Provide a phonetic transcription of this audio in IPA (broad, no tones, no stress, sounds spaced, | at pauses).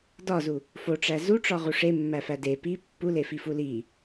d ɒ z u | f o ʈ͡ʂ æ z u ʈ͡ʂ ɒ ʁ u ʂ e mː æ f æ d e p i pː u l e f i f u l i